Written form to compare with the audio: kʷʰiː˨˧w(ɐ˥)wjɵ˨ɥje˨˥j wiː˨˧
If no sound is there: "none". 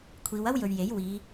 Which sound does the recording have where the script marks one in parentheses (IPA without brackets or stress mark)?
ɐ˥